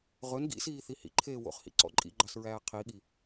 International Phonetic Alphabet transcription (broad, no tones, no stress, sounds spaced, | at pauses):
ʁ ɵ n ɡ ḭ s iː θ i h ḭ ǃʰ eː w o̰ χ h ḭ ǀ ɔ̰ ǃʼ ḭ ɡ͡ǃ ɑ s ɹ æː qʰ i ɠ i